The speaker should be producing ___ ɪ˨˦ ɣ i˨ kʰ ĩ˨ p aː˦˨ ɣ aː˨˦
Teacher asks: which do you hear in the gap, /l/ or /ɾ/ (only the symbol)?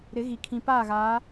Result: ɾ